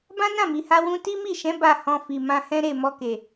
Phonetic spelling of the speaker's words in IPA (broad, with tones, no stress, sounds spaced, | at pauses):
b ã˦ n ã˦˨ m i˨ h a˧ w ũ˧ t i˦ m i˦˨ ʃ ɛ̃˨˦ b a˦˨ h ɔ̃˧ f i˨ m ã˧ h ɛ̃˦ ɾ e˦˨ m ɔ˧ k e˨